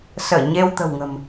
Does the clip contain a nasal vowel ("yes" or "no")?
no